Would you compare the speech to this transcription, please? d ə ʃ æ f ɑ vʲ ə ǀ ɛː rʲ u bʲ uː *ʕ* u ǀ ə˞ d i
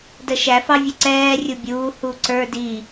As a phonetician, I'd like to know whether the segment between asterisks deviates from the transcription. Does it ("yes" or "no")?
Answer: yes